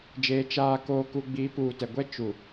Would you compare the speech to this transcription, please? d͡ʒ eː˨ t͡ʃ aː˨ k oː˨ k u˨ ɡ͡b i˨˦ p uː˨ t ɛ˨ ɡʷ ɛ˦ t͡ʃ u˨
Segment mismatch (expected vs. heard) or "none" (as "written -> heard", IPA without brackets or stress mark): none